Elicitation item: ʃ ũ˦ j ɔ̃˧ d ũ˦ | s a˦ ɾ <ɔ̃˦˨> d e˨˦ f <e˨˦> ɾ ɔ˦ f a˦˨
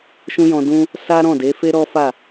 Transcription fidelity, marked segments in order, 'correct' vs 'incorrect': correct, incorrect

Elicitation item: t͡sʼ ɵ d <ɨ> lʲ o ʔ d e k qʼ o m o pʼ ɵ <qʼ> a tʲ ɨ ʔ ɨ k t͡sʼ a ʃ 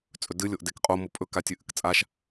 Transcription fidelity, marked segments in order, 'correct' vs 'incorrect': correct, incorrect

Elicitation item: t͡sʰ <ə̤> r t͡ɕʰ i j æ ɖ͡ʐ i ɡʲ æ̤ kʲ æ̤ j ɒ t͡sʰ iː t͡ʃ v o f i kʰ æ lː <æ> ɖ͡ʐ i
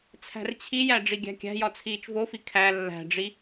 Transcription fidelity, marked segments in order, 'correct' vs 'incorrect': incorrect, incorrect

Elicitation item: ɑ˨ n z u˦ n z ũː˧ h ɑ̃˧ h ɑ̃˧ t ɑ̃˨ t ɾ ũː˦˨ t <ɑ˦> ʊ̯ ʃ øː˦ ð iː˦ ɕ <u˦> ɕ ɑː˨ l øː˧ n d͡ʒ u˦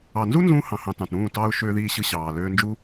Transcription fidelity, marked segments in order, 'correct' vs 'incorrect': correct, incorrect

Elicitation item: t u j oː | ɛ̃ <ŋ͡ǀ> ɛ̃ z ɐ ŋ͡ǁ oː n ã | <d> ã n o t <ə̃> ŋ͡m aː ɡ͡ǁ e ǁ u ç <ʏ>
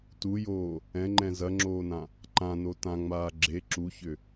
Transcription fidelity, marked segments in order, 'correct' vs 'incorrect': incorrect, incorrect, incorrect, correct

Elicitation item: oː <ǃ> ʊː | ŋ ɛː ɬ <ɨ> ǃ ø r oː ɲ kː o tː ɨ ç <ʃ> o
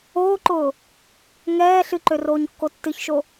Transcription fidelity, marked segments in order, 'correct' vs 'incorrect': correct, correct, correct

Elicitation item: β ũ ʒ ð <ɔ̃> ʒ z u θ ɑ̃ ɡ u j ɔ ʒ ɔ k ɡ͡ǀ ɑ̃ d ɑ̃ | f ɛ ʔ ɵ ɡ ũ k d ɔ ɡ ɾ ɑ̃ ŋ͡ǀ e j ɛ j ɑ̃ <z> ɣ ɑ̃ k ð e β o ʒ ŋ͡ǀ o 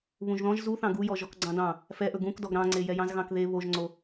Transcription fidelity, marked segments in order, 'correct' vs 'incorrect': correct, correct

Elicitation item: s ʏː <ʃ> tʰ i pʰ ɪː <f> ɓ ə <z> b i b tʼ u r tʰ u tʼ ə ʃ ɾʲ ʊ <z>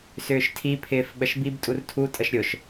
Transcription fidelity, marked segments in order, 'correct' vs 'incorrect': correct, correct, incorrect, incorrect

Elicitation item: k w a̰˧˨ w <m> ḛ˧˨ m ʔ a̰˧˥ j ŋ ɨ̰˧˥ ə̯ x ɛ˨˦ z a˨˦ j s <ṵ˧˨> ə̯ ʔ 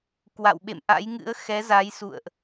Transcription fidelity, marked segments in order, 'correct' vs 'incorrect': incorrect, correct

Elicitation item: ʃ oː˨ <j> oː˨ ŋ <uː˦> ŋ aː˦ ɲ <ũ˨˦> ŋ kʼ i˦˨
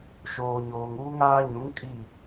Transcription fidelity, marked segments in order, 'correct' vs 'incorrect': incorrect, correct, correct

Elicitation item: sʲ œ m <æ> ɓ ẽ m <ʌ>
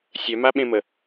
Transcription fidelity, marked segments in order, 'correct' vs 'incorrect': incorrect, incorrect

